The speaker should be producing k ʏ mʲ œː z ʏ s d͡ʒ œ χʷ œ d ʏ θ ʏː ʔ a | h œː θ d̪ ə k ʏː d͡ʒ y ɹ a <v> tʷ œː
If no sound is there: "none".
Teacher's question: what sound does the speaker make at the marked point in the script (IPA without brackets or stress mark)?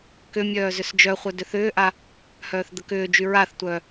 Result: θ